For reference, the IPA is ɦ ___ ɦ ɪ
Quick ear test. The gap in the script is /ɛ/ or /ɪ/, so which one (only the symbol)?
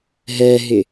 ɛ